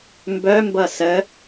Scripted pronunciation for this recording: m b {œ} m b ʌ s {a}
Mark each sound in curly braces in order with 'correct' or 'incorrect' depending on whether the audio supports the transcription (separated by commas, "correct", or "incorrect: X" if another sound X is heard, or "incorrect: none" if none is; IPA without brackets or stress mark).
correct, incorrect: ə